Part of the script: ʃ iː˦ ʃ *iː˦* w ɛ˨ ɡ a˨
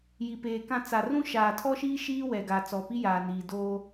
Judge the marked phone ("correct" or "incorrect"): correct